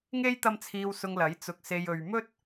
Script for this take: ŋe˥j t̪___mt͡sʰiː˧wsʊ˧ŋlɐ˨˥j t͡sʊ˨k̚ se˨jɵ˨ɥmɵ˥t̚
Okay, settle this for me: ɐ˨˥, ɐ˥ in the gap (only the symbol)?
ɐ˥